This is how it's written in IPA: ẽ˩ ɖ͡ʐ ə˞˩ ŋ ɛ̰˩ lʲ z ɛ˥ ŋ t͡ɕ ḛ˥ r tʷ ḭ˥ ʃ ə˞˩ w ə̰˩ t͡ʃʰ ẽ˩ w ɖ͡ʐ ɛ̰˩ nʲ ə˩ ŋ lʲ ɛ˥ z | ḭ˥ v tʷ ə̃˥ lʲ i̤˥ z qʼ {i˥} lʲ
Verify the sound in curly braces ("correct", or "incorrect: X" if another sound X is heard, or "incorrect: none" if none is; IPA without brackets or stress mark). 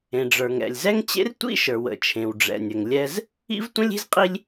correct